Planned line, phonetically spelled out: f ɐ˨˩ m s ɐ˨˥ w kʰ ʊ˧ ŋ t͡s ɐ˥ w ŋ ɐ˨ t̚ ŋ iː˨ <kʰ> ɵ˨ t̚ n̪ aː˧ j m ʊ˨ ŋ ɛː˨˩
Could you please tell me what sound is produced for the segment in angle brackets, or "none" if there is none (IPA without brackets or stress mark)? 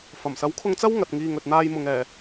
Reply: ŋ